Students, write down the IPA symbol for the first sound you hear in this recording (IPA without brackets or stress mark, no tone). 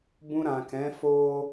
b